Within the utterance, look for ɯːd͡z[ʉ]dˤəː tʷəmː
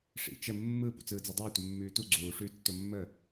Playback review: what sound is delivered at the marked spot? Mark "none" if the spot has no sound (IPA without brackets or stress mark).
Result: ʉ